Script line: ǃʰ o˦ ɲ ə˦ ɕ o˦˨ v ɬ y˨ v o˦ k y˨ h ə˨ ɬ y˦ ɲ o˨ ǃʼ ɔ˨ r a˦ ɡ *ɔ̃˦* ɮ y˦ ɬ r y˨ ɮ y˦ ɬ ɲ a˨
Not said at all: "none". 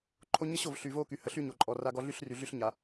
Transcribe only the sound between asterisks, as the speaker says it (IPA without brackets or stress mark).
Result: ɔ˦